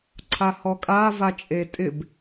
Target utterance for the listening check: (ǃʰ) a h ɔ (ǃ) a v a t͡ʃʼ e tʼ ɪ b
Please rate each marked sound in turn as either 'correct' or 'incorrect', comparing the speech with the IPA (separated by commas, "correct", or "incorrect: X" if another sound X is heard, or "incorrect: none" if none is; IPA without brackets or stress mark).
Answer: incorrect: ǀʰ, incorrect: kʼ